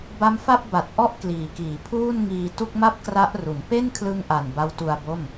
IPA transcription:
ba˦˥mfa˥˩p̚ ba˨˩t̚ ʔɔ˥˩ʔkliː˨˩kiː˩˦ pʰuː˥˩nŋiː˧ tu˥˩k̚ma˥˩p̚kra˦˥ʔru˩˦n pe˥˩nkʰlɯ˧ŋʔa˨˩n ba˦˥wtu˧a̯bo˥˩m

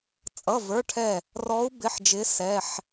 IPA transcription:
t͡sʼʌ˩˧˩və˞˩˧˩ʈʰɛ˧˩ | rɔ˨˦u̯ bɪ˩˧˩ħd͡ʒɪ˨˦ sɛ˩˧˩ħ

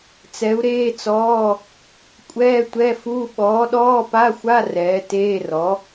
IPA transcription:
t͡sɛ˨˥u̯ɾeː˧˥˧t͡sɔː˧˥˧ | kʷʼɛː˧˥˧tʷɛ˧˥˧fu˧˥˧ ɓɔː˨˥ɗɔː˧˥˧pa˧˥˧xʷa˧˥˧ rɛː˨˥ teː˧˥˧rɔ˨˥

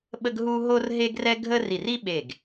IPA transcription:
ɓə˥ɡɦu˥ ɦo˥rɦe˥ɡrɛ˥ ɡʱə˥ ri˧˩ri˥ ɓe˧˩ɡ

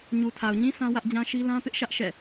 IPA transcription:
ɲu˨tʰa˨ʊ̯ɲĩ˦ sã˦wä˦ʔd͡ʑã˦ʃi˦ lã˦pɪ˦ʔʃä˦ʔ ʃɛ̰˦˨

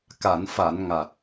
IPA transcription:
ka˨˩˨nfa˨˩˨n ŋa˨˩t̚

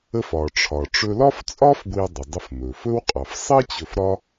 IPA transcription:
ə˧fɒ˩ʈ͡ʂʰɒ˩ ʈ͡ʂɵ˧lɒ˥ft͡sʼɒ˥f ɡʷi˧ɐ̯dˤə˩dˤə˧f mɵ˩ fɵ˥wqʼɑ˩f sˤi˥ t͡ɕɵ˧fɾɒ˥

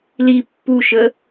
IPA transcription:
li pːuʃə

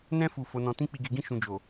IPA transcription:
nɛ̃˧fu˨ fo˨˦nɔ̃˧ tĩ˦k͡pi˧ɡe˧ɡĩ˦ ʃũ˧d͡ʒo˨

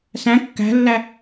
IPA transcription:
sæ̃ kːæ̤lːæ

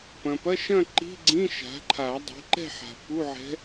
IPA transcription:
pɐ̃˨pɐ˧˥˧ʃɐ̃˥˧ ǃi̤˧˥˧ɡ͡ǀĩ˧˥˧ ʃa̤˩˥ǃʰa˨˩˦ dˤi̤˩˥ǃɛ̤˥˧ħa̤˨ pu˧˥˧ʕɛ̤˧˥

